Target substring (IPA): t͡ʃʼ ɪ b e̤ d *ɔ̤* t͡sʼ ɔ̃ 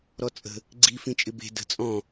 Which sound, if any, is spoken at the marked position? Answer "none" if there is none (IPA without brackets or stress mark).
ə̤